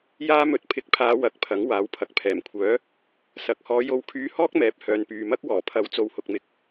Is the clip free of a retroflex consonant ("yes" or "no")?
yes